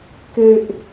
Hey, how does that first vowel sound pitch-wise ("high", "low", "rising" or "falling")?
low